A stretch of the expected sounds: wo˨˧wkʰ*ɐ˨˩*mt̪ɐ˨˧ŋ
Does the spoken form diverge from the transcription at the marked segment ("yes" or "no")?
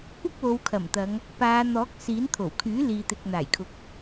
no